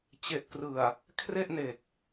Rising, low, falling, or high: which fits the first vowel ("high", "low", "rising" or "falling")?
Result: low